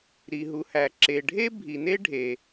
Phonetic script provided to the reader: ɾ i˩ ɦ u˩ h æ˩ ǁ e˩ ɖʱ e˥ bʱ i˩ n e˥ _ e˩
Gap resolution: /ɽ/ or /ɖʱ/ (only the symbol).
ɖʱ